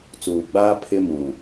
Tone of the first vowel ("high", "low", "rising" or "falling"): low